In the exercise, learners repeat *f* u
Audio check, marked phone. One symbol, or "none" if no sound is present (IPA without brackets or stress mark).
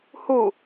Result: h